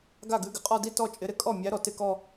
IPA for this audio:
ɡ a˥˩ ɡ ʉ˨˦ ɡ ɪ˩ qʼ ɔ˥˧ d i˥˧ t ɔ˥˩ t͡ʃʼ ɪ˨˦ ɾ ɪ˨˦ kʼ ɔ˥˩ mʲ æ˨˦ ɾ ɔ˩ t ɪ˥˩ k ɔ˥˧

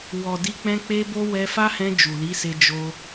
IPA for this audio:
w ɔ˨ d i˧ k͡p ɛ̃˧ k͡p e˦ b o˦ w ɛ˧ f a˦ h ɛ̃˧ d͡ʒ u˨ l i˨˦ s e˧ d͡ʒ o˧

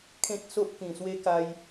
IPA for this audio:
kʰ ẽ˦ t̚ s o˦ ʔ k ĩ˨˩ s w e˦ k a˧ j

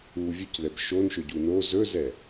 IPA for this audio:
u vʲ ɵ c ð ɛ b ʃ o n ʃ ɵ ɟ u n o z ɵ z ɛ

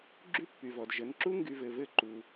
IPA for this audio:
ɡ͡ǁ y˦ pː y˨ v ɔ˨ d ʒ ə˨˦ n ǁ u˦ ŋ ɡ y˨ v ɘ˨ v ɘ˦˨ ǃ u˨

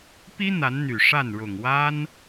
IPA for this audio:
p i˥ n̪ a˧˥ n n̪ y˨˩ ʂ a˥˩ n ɻ ʊ˨˩ ŋ w a˥ n

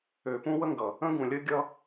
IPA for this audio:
ø˨ p ũ˦ w ə˦ ŋ ɡ ʌ˨ | ə̃˦ ɡ ũ˨ lʲ ə˦ ɡʲ ʌ˦

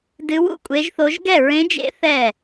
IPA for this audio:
d ɨ˧˥ w ṵ˥˩ kʷʼ e˧˥ ʒ θ o˧˥ ʒ ɡ ɛ˥˩ ɹ ẽ˧˥ d͡ʒ ḛ˧˥ θ ɛ˥˩

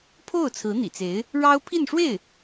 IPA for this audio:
pʰ o˥˩ ʊ̯ t͡sʰ ɹ̩˧˥ n̪ ḭ˨˩ t͡s e˧˥ ɪ̯ | ɻ ɑ˥ ʊ̯ pʰ i˥˧ n ʂ w e˥˩ ɪ̯

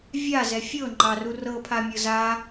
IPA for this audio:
vʲ a z ɛ fʲ ɤ ŋ͡ǃ ɑ r u r ɤ pʰ a mʲ ɤ z a

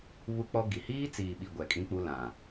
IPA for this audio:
β u˦ k͡p ɔ˦ ɡ i˨ h iː˦ t͡s iː˨ ɓ i˨ ɡʷ ɛ˨ kʼ ĩ˦ k͡p u˦ l ã˨

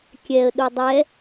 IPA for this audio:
kʲ ɛ ə̯ ɗ u dˤ ɛ

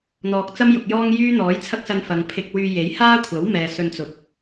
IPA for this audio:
n̪ ɔː˨ k̚ t͡s ɐ˥ m j ʊ˨ k̚ j ɔː˥ ŋ j yː˥ n̪ ɔː˨˥ j t͡sʰ ɐ˥ k̚ s ɐ˧ n f ɐ˨ ŋ pʰ ɪ˧ k̚ w yː˧ j e˨˥ j h aː˥ kʷʰ ɐ˨˥ w m ɛː˨˧ s ɵ˧ n t͡s ʊ˨˥ k̚

